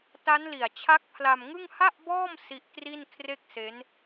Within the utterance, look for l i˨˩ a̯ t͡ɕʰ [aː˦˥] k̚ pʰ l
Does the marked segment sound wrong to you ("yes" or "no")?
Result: yes